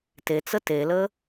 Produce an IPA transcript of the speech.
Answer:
t e t͡s ə t e l əː

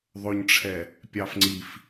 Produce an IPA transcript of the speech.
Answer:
ðˤ ɵ ɲ ʈ͡ʂʰ ɛ | pʲ ɑ f ŋ͡ǀ i f

